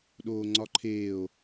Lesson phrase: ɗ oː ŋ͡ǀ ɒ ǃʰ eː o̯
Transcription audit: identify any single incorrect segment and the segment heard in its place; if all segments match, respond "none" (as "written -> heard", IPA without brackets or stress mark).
none